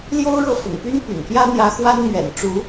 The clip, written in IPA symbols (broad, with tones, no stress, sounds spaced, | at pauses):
l j o˥ ʊ̯ ɻ ɤ˥˩ f ʊ̰˨˩ ŋ p y˥ n p y̰˨˩ n p j ä˥ n̪ j ä˧˥ x w a˥ n m ɥ ɛ̰˨˩ n ʈ͡ʂ u˧˥